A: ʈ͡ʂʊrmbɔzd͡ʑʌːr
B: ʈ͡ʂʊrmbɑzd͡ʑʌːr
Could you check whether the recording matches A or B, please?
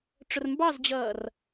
B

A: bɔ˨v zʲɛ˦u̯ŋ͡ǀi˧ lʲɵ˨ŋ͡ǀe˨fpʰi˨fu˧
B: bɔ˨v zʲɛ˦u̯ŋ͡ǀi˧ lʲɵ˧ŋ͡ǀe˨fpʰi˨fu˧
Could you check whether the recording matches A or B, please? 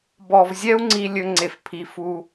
B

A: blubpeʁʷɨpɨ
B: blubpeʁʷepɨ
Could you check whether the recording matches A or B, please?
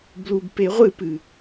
A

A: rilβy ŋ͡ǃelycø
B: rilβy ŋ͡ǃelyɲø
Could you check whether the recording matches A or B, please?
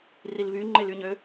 B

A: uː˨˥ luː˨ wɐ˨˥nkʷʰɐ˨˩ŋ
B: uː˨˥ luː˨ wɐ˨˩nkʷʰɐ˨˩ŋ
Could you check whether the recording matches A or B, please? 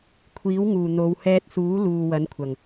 A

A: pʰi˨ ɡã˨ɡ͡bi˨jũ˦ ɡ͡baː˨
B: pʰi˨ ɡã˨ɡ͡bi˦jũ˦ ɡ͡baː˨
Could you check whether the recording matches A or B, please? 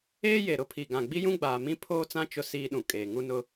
B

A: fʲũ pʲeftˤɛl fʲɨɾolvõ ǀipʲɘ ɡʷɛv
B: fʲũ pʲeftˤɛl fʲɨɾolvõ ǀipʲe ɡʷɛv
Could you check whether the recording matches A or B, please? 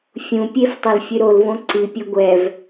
A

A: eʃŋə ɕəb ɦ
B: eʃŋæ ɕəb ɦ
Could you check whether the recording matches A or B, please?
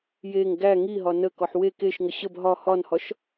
A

